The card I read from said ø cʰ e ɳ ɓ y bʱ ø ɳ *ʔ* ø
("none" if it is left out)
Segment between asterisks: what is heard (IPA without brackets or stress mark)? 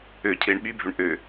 ʔ